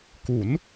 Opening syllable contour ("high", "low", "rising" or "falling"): rising